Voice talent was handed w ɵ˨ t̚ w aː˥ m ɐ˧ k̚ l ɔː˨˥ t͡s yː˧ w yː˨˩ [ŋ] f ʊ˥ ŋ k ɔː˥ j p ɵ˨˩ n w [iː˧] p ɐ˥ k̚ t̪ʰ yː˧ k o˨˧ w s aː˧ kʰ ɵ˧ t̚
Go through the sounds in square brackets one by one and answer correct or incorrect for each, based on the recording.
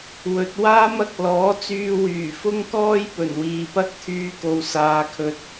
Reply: incorrect: none, incorrect: iː˨

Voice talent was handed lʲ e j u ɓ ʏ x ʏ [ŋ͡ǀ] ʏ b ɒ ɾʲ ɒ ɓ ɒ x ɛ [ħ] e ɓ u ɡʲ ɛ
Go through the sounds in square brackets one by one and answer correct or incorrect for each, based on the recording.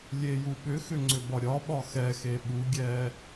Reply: correct, incorrect: x

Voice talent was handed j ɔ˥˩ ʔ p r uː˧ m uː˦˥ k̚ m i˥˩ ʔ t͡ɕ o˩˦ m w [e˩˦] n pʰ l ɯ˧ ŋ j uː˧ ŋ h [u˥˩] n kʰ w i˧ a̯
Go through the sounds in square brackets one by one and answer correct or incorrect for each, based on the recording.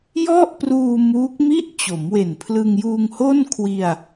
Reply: incorrect: e˨˩, incorrect: o˥˩

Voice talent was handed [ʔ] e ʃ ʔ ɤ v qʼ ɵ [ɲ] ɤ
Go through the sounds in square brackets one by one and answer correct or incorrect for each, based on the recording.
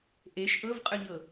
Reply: correct, correct

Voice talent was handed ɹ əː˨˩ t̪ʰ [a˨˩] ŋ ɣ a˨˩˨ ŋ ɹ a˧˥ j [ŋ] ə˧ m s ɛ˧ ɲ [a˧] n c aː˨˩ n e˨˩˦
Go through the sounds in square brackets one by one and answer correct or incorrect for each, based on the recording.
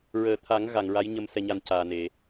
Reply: incorrect: a˨˩˦, incorrect: ɲ, correct

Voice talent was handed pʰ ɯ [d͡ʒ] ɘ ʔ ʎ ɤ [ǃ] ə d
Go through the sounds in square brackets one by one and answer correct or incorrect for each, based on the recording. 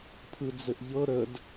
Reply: incorrect: d͡z, incorrect: ɾ

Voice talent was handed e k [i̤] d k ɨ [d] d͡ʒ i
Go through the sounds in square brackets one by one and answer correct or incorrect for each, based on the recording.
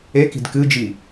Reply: correct, incorrect: none

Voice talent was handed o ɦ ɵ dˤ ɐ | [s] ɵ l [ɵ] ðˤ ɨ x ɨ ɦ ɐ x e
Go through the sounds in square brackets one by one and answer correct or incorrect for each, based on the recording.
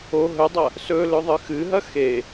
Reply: correct, correct

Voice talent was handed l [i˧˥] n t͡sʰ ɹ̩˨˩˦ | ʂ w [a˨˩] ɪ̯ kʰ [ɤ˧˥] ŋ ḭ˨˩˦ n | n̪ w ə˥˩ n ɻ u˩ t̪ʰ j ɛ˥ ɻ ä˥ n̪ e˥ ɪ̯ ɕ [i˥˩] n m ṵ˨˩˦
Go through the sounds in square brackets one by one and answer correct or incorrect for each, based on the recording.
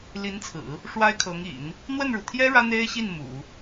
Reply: correct, incorrect: a˥, correct, correct

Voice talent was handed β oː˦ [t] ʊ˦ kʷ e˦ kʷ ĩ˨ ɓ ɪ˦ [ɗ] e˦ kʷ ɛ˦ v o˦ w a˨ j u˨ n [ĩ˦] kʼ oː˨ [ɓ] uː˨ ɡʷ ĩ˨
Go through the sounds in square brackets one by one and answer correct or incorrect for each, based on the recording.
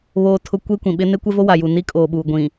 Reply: incorrect: tʰ, incorrect: n, incorrect: i˦, correct

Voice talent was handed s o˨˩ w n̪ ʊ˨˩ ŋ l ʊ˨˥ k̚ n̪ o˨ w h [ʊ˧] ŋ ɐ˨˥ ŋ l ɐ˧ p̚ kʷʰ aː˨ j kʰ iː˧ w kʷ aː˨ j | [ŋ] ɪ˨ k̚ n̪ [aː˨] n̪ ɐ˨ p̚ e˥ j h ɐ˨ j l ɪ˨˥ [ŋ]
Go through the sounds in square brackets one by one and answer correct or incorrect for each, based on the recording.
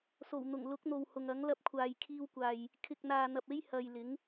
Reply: incorrect: ʊ˨, incorrect: kʰ, correct, correct

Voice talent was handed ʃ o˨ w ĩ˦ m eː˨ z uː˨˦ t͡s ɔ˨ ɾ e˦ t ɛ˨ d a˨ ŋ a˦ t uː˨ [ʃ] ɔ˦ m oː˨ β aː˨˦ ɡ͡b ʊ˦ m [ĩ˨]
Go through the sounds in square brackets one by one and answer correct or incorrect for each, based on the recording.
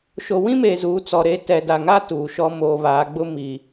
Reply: correct, incorrect: i˨

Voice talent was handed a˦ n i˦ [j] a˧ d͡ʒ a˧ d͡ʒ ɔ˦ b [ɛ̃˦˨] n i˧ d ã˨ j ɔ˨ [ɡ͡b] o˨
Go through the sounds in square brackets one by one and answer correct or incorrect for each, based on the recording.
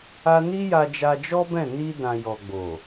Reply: correct, correct, correct

